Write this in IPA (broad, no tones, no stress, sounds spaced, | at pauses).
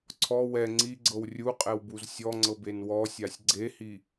ǀʰ ɔ w ɛ ŋ͡ǀ i ɡ͡ǀ ɤ w rʲ u qʼ ɛ w b u z sʲ ɔ ŋ͡ǀ ɤ b e n w ɔ sʲ a sʲ ɡ͡ǀ e h i